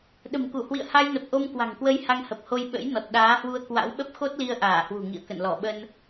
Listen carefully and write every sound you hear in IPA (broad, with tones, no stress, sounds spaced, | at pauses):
ɗ ə̤˨˩ m k u˧˩ h w ḭ˧˨ ə̯ h a˧ j n ə˨˩ p̚ ʔ o˧ m k w a̤˨˩ ŋ k w ə˧ j h a˧ ŋ h ə˨˩ p̚ h o˧ j ɓ ə̰˧˥ j n ɔ˨˩ t̚ ɗ aː˨˦ h w u˧ ə̯ k w a̰˧˥ w ɓ ə˦˥ p̚ x o˦˥ t̚ l i˧ ə̯ ʔ aː˧˩ h w ṳ˨˩ ŋ ḭ˧˨ ə̯ k ə̰˧˨ n l ɔ˧˩ ɓ ə˧ n